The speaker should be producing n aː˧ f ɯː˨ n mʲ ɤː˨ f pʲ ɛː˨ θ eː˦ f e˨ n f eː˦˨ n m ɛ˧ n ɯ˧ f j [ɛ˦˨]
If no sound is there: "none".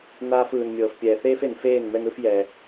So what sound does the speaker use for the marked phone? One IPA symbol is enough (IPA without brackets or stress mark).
ɛ˨